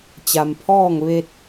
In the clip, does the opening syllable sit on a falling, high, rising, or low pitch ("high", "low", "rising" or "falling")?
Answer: low